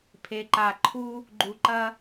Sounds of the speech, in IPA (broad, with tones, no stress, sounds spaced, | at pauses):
pʰ e˨ ǃ a˨ ǃʰ u˦ | ɡ͡ǃ u˨ ǃ ɐ˦